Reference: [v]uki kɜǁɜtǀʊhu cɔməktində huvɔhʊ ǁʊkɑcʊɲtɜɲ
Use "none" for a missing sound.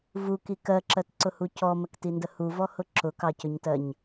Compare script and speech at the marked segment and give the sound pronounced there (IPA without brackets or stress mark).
v